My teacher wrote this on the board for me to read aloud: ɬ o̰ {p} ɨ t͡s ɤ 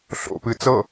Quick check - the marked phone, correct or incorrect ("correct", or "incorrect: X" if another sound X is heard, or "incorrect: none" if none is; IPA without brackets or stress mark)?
correct